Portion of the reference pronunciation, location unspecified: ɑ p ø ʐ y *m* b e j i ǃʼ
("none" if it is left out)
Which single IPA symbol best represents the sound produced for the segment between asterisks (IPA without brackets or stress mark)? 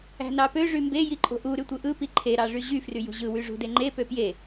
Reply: m